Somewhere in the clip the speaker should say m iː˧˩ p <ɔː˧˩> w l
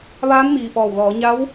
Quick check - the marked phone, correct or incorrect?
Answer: correct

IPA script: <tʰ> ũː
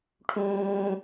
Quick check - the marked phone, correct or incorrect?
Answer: incorrect: ʈʰ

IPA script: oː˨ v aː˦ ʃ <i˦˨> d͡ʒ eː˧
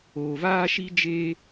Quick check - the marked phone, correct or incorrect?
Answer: incorrect: i˦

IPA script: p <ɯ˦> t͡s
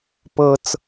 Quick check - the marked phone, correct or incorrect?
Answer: incorrect: ɤ˦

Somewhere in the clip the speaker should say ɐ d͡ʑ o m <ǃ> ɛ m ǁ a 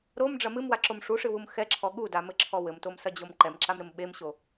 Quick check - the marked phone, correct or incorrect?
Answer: correct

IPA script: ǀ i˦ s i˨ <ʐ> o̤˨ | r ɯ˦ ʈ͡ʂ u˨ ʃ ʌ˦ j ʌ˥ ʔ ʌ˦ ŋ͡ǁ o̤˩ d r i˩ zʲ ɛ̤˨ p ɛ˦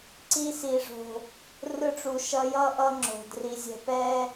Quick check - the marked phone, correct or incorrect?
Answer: correct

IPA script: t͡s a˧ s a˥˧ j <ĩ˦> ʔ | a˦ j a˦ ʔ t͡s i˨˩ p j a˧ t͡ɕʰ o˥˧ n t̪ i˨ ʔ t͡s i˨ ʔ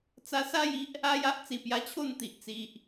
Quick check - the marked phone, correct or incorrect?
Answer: incorrect: i˦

